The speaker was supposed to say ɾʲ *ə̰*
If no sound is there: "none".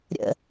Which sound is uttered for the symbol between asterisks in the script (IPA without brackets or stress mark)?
ə̰